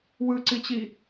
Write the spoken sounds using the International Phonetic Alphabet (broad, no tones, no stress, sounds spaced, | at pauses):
w ɯ ǀ i t͡ɕ i